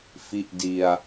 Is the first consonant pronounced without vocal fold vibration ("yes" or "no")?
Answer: yes